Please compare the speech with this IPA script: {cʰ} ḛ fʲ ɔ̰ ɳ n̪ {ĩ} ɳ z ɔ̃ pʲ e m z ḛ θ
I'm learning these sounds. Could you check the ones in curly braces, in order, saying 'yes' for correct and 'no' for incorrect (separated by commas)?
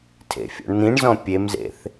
no, yes